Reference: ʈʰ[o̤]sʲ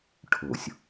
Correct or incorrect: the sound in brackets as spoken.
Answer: correct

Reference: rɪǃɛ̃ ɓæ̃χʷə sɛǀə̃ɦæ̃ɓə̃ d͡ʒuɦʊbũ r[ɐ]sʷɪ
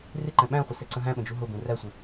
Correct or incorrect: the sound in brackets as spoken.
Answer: incorrect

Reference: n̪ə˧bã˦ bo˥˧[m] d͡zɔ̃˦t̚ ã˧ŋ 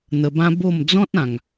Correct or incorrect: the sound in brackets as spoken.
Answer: correct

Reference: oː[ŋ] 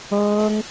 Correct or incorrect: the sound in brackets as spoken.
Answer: correct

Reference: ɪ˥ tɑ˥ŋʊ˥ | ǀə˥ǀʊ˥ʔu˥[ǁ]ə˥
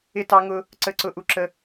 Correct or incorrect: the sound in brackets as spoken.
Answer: correct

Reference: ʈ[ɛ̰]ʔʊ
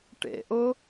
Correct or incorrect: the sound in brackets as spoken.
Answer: incorrect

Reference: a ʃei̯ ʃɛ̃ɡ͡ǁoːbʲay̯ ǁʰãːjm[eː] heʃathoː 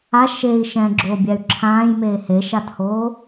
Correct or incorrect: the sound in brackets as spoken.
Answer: correct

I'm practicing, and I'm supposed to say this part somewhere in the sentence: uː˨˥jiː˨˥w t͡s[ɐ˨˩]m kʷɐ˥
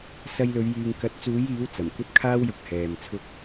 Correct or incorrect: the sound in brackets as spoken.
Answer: correct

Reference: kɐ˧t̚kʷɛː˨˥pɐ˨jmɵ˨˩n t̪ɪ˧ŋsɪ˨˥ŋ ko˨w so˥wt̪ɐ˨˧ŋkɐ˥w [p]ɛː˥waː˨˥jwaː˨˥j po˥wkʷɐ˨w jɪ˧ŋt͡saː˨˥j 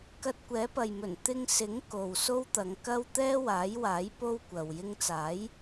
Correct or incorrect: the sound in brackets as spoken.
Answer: incorrect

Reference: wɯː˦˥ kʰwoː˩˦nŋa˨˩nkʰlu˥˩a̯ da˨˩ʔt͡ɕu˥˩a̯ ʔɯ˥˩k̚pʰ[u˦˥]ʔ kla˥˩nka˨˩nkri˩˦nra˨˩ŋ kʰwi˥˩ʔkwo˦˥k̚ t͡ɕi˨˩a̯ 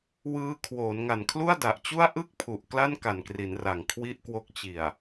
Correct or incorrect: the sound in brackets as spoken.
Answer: incorrect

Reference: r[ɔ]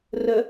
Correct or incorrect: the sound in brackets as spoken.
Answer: incorrect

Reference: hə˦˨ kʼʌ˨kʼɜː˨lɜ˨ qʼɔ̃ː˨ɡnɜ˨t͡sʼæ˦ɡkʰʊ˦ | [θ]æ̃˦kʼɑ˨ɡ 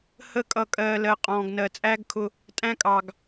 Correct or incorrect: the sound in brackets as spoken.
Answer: incorrect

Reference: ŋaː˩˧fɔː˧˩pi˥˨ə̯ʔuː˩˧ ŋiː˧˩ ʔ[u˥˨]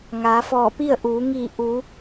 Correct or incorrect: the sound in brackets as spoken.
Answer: incorrect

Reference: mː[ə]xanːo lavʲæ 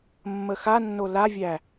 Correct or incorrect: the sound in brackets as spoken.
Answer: correct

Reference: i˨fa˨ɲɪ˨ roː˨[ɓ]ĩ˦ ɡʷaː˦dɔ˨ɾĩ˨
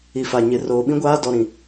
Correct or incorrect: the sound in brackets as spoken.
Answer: correct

